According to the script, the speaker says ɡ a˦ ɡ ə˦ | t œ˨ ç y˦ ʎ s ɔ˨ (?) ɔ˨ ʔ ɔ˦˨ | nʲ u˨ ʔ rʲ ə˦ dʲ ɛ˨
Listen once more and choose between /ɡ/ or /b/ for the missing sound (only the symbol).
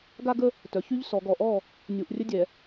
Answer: ɡ